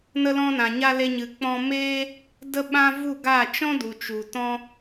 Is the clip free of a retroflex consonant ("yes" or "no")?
yes